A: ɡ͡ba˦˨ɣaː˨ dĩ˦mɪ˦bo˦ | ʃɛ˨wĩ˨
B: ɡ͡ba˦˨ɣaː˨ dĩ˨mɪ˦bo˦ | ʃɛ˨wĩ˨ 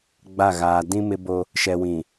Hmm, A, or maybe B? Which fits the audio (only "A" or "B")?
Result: A